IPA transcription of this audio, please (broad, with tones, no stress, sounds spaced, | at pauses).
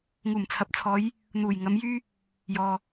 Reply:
ŋ uː˨˩ m t͡sʰ ɐ˨˥ p̚ t͡sʰ ɔː˨˧ j | n̪ uː˨˩ j ŋ ɐ˨˧ m j yː˥ | j ɔː˨